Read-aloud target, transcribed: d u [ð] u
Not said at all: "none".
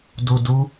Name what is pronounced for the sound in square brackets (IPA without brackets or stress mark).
d